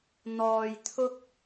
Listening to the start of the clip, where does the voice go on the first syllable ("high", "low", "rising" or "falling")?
low